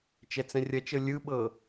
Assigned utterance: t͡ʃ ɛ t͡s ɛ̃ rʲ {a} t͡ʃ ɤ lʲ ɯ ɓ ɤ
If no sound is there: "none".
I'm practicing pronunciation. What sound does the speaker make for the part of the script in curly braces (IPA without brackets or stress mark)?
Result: ɐ